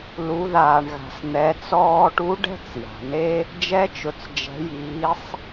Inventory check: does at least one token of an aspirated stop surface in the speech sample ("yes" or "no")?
no